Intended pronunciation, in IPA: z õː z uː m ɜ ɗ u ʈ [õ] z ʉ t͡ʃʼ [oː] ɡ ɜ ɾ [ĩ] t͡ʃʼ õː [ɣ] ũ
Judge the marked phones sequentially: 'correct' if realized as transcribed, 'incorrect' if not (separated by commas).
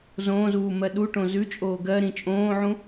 correct, correct, correct, incorrect